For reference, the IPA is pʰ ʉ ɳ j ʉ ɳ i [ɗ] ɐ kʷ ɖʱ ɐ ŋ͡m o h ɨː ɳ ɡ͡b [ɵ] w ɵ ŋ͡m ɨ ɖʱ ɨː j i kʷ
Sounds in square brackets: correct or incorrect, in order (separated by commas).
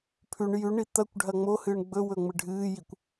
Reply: incorrect, correct